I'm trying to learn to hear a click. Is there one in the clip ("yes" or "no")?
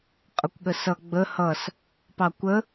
no